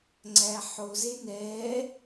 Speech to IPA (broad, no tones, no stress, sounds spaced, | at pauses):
ŋ͡ǀ æ ħ o z e n ɛ